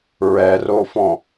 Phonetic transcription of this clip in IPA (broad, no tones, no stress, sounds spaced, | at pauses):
ɹ ɛ r o f ɔ̃